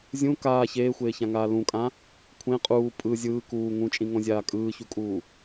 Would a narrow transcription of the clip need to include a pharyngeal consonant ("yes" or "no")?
no